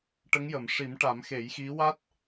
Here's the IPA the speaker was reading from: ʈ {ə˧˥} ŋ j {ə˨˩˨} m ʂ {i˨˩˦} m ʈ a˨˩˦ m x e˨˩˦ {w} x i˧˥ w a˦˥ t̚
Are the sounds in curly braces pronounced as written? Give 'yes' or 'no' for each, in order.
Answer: yes, yes, yes, no

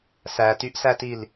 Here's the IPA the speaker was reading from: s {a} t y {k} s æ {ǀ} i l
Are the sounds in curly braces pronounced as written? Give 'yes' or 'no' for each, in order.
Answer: no, no, no

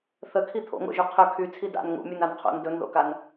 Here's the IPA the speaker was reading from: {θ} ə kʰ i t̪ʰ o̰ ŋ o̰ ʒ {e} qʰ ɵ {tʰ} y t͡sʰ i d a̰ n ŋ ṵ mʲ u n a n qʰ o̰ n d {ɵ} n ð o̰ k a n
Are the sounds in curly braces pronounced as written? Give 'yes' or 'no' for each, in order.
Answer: yes, no, no, yes

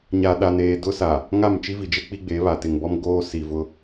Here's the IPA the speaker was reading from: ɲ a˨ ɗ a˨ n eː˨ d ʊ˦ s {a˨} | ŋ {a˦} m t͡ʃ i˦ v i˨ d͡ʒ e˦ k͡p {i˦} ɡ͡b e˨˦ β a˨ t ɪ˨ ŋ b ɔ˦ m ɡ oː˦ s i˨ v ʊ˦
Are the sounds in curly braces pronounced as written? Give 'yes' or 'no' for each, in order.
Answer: yes, no, yes

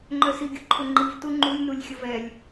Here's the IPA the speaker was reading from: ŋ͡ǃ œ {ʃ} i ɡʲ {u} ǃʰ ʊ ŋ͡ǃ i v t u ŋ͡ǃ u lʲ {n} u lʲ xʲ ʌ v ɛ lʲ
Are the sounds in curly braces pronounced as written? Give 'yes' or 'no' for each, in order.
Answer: no, yes, yes

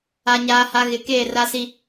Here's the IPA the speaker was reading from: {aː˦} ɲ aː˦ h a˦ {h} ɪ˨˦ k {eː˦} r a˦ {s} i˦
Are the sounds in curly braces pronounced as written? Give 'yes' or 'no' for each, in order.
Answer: no, no, no, yes

